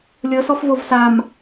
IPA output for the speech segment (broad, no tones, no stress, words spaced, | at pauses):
lʲɤsɔf vovsam